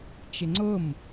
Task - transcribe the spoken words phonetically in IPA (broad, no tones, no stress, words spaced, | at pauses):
t͡ʃɪŋ͡ǀʊm